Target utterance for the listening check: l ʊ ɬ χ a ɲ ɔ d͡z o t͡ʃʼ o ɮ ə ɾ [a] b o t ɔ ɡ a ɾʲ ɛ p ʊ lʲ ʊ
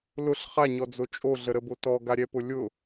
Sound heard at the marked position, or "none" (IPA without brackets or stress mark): ə